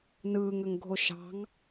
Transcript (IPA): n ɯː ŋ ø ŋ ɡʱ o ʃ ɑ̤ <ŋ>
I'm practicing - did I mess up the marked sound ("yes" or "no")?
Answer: no